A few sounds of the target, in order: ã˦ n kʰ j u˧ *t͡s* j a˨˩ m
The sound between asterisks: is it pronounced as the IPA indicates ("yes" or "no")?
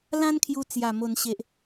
yes